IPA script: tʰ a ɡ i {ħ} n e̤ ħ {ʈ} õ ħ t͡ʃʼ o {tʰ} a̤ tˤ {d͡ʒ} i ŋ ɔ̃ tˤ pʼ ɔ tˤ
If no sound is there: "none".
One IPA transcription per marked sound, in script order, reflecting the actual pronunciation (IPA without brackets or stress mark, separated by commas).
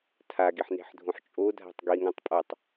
ħ, dʱ, dʱ, ɡ